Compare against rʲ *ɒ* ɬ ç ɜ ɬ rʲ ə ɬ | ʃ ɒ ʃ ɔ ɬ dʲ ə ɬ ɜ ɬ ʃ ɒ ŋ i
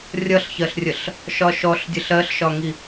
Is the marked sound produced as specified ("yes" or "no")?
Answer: no